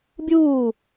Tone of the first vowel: falling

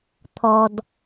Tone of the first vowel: low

